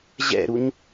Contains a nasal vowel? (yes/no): no